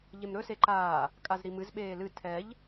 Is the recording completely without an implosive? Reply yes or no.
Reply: no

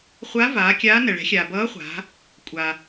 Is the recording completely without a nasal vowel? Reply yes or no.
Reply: yes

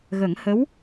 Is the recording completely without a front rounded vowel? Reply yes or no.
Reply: yes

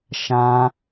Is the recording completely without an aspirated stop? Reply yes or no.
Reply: yes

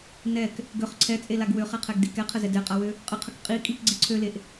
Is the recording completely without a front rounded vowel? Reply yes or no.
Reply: no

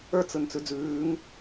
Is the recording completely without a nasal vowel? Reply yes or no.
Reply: yes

